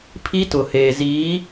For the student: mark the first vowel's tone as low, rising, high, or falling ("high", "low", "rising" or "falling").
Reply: high